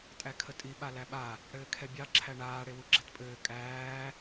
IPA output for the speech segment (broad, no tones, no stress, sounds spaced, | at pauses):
tʼ æ kʰ ə tʼ i ɓ a l æ ɓ a | ɽ ɘː kʰ ɛ bʲ ɑ ǁʰ æ ɳ aː ɽ e w u ɡ͡ǁ ɛ t pʼ ɘː kʼ æː